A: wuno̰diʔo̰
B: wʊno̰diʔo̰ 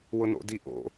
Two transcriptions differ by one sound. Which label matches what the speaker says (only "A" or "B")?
B